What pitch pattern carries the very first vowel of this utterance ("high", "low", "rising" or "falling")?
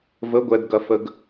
rising